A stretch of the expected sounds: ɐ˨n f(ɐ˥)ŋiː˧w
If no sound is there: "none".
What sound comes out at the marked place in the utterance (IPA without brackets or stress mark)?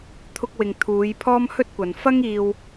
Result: ɐ˥